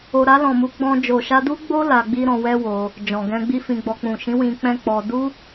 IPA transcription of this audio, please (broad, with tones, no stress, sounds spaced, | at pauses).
o˨ ɾ a˧ l ɔ̃˨ m u˨˦ ɡ͡b ɔ̃˧ d͡ʒ o˨ ʃ a˧ d u˦ ɡ͡b o˦ l a˧ ɡ͡b i˦ ɾ ɔ̃˧ w ɛ˦ w o˧ | d͡ʒ ɔ̃˨ ɡ ɛ̃˧ ɡ͡b i˦ f ĩ˧ ɡ͡b ɔ˧ k͡p ũ˨ ʃ ĩ˨˦ w ĩ˧ k͡p ɛ̃˦ k͡p ɔ˧ d u˦